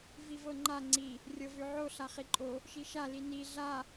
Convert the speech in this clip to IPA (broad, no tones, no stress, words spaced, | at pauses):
vivɤŋ͡ǃa ŋ͡ǀi | rʲɤvøʕo ɬaχiǃʼo | ʃiʃa lini ɮa